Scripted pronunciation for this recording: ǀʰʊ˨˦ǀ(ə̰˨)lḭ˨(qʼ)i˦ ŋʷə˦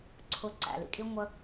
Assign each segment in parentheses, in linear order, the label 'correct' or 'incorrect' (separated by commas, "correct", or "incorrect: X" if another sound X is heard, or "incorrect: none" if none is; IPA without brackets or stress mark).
incorrect: æ̰˨, incorrect: kʼ